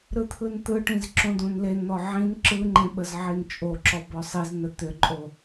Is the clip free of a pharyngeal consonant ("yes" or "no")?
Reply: no